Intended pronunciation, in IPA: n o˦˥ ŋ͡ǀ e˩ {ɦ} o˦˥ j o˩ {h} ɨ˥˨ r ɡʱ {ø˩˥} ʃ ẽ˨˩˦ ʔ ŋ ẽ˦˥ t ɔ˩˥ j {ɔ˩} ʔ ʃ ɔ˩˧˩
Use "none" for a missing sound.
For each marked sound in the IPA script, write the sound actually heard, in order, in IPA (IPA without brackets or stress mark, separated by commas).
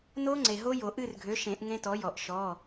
ɦ, ʔ, ø˩˥, ɔ˩